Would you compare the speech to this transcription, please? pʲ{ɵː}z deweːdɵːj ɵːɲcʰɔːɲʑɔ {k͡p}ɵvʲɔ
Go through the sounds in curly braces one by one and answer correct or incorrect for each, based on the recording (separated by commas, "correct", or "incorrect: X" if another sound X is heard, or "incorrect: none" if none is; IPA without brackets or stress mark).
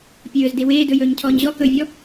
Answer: correct, incorrect: k